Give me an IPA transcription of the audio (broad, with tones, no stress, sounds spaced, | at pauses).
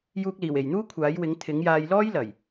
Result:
j uː˧ k̚ l iː˨˩ w e˨˩ j n̪ uː˥ kʷʰ aː˨˥ j w ɪ˨˥ ŋ t̪ʰ ɪ˨˥ ŋ j aː˧ j l ɔː˥ j l ɐ˨˩ j